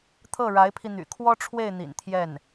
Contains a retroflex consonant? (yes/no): yes